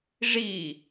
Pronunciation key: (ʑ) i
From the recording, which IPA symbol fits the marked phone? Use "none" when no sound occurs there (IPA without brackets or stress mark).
ʐ